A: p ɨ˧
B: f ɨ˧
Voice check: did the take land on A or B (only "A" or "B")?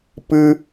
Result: A